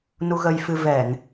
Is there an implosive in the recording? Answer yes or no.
no